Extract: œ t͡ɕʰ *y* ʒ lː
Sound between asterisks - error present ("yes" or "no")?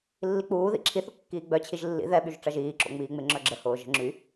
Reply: yes